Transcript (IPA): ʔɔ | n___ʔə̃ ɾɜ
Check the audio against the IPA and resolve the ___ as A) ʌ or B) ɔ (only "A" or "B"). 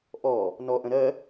B